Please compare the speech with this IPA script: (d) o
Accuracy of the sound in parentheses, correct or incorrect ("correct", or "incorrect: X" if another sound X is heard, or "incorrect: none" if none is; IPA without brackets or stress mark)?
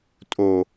incorrect: tʼ